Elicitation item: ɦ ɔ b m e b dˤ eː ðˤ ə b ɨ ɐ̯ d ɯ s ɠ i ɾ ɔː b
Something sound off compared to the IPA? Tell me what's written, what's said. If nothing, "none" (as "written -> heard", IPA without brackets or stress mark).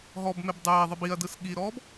ɨ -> i